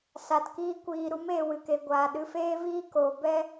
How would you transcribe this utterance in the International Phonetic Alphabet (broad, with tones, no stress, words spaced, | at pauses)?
sa˨tkiː˧kʷiː˨ɾu˨˦m eː˨wɨ˨ke˨ ɡʷaː˨ ɗɨ˨feː˧viː˧ koː˨bɛ˦